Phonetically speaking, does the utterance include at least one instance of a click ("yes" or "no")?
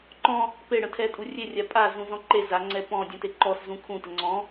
yes